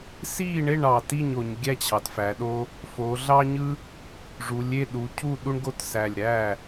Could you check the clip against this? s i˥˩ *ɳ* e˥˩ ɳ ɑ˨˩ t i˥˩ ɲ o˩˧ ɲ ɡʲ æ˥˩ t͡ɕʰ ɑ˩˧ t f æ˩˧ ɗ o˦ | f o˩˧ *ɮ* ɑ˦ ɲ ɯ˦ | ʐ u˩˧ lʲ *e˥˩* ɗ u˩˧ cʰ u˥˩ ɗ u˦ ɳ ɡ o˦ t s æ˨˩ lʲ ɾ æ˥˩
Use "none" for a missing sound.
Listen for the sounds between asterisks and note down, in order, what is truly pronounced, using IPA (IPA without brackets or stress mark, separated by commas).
ɳ, ɮ, e˥˩